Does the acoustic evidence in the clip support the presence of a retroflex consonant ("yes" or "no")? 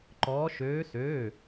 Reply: no